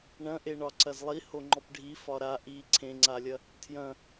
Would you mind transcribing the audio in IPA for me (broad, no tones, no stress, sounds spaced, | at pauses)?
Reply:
ɳ ɐ̃ ʔ e ɳ ɒ ǀ ɐ z lˠ i h o ŋ͡ǃ ɔ p ɖʱ i f ɒ ɾ a ʔ i ǀʰ ẽ ŋ͡ǀ a lʲ ɐ | tʰ j ɐ̃